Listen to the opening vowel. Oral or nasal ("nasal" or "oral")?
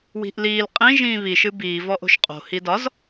oral